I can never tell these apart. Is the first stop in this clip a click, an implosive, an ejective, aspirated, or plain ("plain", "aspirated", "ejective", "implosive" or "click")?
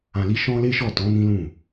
plain